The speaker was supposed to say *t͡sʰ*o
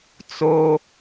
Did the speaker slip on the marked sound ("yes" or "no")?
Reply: yes